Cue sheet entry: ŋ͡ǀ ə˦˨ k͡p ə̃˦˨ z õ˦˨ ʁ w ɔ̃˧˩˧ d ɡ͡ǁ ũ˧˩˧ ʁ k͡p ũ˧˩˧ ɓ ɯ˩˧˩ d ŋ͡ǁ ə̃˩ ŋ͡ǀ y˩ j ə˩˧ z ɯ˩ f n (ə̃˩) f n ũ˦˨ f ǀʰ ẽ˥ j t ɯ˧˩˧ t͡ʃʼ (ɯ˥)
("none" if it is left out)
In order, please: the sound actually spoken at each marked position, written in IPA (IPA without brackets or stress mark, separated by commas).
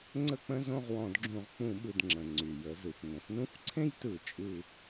ə̃˩, ɯ˦˨